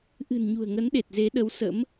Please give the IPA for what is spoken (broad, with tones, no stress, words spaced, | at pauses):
ʔɨ̤˨˩nɲṳ˨˩ə̯ŋə˨˦nɗe˨˩t̚ ze˨˦ɗə˨˦w sə̰˧˥m